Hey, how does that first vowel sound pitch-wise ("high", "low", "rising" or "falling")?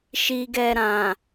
low